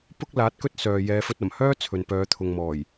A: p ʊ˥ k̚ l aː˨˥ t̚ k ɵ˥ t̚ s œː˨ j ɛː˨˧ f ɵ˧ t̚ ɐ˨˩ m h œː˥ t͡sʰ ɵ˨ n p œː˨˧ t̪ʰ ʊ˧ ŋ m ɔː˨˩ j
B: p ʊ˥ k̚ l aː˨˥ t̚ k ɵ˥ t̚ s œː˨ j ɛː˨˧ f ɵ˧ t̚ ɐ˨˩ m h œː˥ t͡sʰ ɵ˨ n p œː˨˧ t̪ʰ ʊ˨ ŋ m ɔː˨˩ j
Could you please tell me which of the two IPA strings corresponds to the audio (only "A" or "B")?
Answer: B